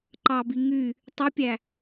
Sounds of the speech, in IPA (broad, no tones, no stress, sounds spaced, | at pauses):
ǃ ɑ b i ŋ y | tˤ y pʲ æ